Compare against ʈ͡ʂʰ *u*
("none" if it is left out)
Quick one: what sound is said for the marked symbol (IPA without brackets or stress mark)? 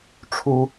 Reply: u